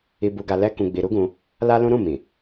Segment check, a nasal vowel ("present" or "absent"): present